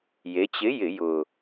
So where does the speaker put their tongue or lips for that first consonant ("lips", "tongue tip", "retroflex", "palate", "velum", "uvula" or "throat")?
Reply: palate